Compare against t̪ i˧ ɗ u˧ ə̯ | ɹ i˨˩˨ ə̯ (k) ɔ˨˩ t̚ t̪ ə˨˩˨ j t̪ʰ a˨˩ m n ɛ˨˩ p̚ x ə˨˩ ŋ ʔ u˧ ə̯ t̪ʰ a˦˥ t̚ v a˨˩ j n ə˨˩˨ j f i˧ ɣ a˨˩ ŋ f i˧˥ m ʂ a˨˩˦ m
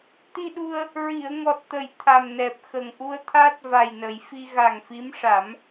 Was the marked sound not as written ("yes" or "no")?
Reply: yes